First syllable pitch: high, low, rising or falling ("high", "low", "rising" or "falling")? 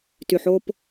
low